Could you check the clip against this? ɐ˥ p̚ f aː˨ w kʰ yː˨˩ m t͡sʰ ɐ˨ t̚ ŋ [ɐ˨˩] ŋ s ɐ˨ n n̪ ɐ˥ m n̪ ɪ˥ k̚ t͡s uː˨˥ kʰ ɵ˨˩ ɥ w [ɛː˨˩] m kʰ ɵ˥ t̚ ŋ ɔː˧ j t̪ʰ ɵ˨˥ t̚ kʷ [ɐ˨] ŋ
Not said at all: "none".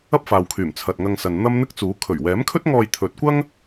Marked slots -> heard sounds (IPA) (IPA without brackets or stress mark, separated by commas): ɐ˧, ɛː˨˥, ɐ˥